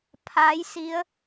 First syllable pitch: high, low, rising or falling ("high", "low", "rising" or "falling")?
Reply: rising